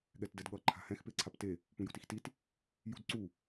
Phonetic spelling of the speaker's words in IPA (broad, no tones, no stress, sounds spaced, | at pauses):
ɠ ɛ t d ɛ d ɠ ʌ ǃʰ a̤ h ɛ̃ x p e ǀʰ a p t e | p ũ j ṳ t i x t i t | j ṳ d ǀ u